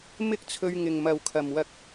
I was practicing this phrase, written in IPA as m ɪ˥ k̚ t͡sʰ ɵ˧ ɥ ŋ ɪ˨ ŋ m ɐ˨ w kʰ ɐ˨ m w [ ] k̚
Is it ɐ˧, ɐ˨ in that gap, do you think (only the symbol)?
ɐ˧